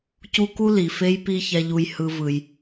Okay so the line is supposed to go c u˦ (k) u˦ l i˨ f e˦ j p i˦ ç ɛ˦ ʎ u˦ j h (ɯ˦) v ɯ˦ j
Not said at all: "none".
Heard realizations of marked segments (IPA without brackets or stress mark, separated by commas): k, ɯ˦